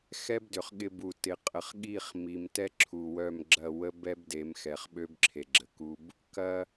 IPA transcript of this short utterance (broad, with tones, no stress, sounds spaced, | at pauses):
x ɛ˦ b d ʏ˨ χ ɠ ɪ˨ b u˨ t ɪ˨ qʼ ə˨ χ ɠ i˦˨ χ m i˦ m t ɛ˦ ǁʰ u˨ w œ˦˨ m ɡ͡ǁ ɐ˦˨ w ə˦ b ɛ˦ b d e˨˦ m x ɛ˨ χ ɓ ø˦ b ǁʰ e˨ ɡ͡ǁ ə˨ k u˦ b | k ɐ˦